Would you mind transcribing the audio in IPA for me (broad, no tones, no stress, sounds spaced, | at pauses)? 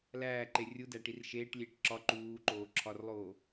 l æː ǃ e rʲ u d æ ʈ i r ʃ eː ʈ lʲ eː ʈ ǁ ɒ ǃ uː ǃ oː ǁʰ ɒ r lˠ oː